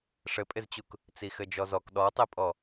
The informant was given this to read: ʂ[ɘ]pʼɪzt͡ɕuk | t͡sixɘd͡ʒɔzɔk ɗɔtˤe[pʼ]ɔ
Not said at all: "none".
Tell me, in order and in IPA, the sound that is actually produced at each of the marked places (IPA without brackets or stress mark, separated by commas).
ɘ, pʼ